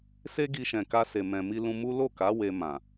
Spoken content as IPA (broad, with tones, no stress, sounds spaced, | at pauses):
s e˦ ɡ i˧ ʃ ɛ̃˨ k a˧ s e˨ m ɛ̃˨ m i˧ l ũ˧ m u˦ l o˦˨ k a˨˦ w e˧ m ã˨